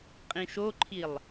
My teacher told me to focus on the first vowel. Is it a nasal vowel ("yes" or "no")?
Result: yes